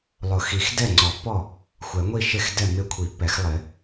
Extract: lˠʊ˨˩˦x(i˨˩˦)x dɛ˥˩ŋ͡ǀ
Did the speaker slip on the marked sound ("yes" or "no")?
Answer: no